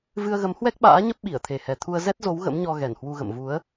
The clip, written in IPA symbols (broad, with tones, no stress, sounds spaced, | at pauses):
v ɨ˧ ə̯ ɣ ə˨˦ m h w ɛ˦˥ k̚ ɓ a̰ː˧˥ ɲ ə˦˥ p̚ ɓ i˧˩ ə̯ t̪ʰ e˨˩ h ɛ˨˩ t̪ʰ u˧ ə̯ z ɛ˦˥ t̚ z o˨˦ w ɣ ə̰˧˥ m ɲ ɔ˧ ɣ ɛ˧˩ n h w u˧ ɣ ə̰˧˨ m v u˨˦ ə̯